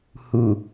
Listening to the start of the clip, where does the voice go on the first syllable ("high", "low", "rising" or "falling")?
low